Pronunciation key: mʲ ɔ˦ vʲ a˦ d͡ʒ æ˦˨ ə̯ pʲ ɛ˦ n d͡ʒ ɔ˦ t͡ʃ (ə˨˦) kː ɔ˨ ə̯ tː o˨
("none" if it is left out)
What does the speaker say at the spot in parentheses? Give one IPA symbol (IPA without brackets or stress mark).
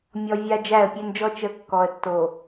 ə˨˦